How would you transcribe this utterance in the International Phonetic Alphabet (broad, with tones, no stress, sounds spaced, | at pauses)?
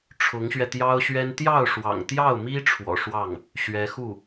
ʈ͡ʂʰ ʊ˧˥ ŋ ɕ ɥ ɛ˧ t̪ j ɑ˥ ʊ̯ ɕ ɥ ɛ˥ n t̪ j ɑ˥˩ ʊ̯ ʂ w ɑ̰˨˩ ŋ t̪ j ɑ˥˩ ʊ̯ m i˥ ʈ͡ʂʰ w ɔ̰˨˩ ʂ w ɑ˥˩ ŋ | ɕ ɥ ɛ˧˥ x u˥˩